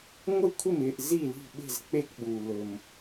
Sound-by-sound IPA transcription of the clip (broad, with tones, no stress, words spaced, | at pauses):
ŋʷɘ˥˨kʷʰɪ˥˨mɪː˥˨ʔ zi˥˨li̤˥˨ ɓe̤˥˨z k͡pe˥˨kɓu˨ lɵ˨m